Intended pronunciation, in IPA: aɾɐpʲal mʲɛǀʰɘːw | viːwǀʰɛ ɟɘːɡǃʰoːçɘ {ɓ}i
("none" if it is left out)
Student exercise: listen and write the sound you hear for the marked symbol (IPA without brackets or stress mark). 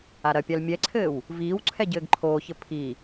pʰ